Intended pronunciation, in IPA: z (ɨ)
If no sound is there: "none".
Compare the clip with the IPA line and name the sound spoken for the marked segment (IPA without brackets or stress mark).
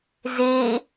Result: e